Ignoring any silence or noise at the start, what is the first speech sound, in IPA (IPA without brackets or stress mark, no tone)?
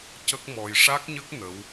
c